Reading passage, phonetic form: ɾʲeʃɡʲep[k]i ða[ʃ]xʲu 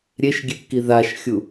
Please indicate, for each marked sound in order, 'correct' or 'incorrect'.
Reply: correct, correct

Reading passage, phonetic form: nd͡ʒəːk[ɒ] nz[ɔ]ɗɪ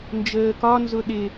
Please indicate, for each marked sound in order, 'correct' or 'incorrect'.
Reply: correct, incorrect: ʊ

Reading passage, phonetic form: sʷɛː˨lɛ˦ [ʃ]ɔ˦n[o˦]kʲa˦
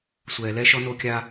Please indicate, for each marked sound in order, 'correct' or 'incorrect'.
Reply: correct, correct

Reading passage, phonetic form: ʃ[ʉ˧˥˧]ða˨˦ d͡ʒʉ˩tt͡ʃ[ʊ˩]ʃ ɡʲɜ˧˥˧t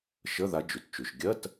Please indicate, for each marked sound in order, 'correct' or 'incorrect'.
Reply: incorrect: ə˧˥˧, incorrect: ʉ˩

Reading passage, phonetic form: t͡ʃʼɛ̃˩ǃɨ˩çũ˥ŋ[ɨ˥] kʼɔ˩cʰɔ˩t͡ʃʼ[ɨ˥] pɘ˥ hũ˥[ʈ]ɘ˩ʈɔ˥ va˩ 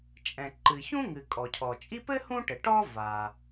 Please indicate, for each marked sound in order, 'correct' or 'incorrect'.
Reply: incorrect: ɨ˩, incorrect: i˥, correct

